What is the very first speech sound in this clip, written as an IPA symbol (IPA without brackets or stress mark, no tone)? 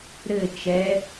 ɾ